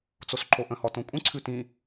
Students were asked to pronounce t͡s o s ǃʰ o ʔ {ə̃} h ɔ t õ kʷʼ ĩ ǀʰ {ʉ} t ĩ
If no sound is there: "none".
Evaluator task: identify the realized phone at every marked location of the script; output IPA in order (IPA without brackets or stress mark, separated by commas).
ə̃, ʉ